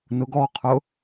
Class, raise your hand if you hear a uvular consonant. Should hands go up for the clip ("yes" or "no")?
yes